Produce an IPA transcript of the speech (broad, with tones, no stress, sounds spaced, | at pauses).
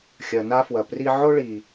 xʲ ɐ˨ n a˦ f w ɐ˨ p r i˦ ʕ o˥ ɭ i˨